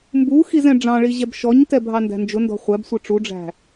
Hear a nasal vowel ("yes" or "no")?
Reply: yes